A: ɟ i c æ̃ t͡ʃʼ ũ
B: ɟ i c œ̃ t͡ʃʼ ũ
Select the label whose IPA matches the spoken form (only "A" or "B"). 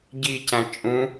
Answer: A